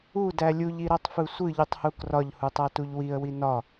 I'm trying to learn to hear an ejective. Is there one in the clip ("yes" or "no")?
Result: no